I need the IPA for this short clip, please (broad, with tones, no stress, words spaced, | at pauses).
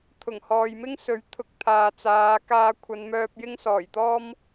t̪ʰʊ˨˩ŋhɔː˨j mɪ˥ŋsɵ˨˥ɥt̪ʰʊ˨˥k̚ t̪ʰaː˨t͡saː˨˧kaː˧kʷʰɐ˨˧n mœː˧p̚jɪ˥ŋsɔː˨˩jt̪ɔː˥m